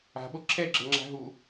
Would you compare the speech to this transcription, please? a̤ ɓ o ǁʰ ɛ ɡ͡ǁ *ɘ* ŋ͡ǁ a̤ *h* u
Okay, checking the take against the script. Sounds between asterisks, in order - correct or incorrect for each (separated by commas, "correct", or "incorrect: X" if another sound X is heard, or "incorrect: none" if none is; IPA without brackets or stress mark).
correct, incorrect: ɦ